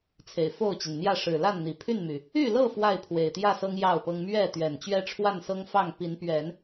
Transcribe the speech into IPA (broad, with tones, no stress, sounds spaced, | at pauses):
t͡sʰ e˨˩ ɪ̯ f o˥˨ ʊ̯ t͡ɕ i˩ n n̪ j ä˥˨ ʂ ɻ̩˨˩ l a˥˨ n n̪ i˨˩ pʰ y˥˨ n m y˩ | y˥˨ l ɤ˥˨ f w a˥˨ ɪ̯ pʰ w e˨˩ ɪ̯ t̪ j ä˥˨ s ɤ˦ ŋ j ɑ˥˨ ʊ̯ p ɤ˦ ŋ m ɥ ɛ˥˨ t̪ ɥ ɛ˨˩ n t͡ɕ ɥ ɛ˦ ʈ͡ʂʰ w a˥˨ n s ɤ˦ ŋ f ɑ˥˨ ŋ p i˨˦ n p ɥ ɛ˨˦ n